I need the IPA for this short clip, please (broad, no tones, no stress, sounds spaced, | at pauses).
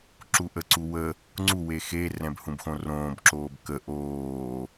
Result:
ǁ u ʔ ə ǀ u w ə | ŋ͡ǀ u w e x e r ɛ̃ b h ũ b x õ r õː b ǁ oː b k ə ʔ oː